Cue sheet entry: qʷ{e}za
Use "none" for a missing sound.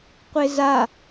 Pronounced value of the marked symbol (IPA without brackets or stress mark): e